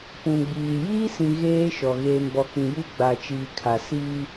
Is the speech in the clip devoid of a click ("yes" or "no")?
yes